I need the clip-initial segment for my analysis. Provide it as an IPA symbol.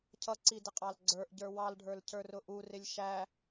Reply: cʰ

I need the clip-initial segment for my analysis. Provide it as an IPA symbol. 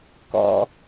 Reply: k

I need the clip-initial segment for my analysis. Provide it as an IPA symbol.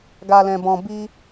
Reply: ɡ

